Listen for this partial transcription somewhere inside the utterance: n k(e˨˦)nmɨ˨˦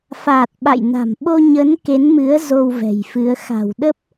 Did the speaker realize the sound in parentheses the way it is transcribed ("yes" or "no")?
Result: yes